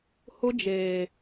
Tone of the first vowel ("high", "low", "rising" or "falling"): high